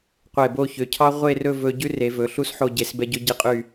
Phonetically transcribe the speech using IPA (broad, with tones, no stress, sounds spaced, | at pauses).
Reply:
qʷ e˧˩ b o˥˧ ç ø˩˧ cʰ ɑ˥ ʁʷ e˥˧ r ɵ˥˧ v ɵ˧ ɟ ʉ˥ r e˩˧ v ɵ˩˧ ɬ u˥ s ħ o˧ ɟ e˩˧ s b ɛ˧ ɟ ɵ˧ ɟ i˧ qʼ y˧˩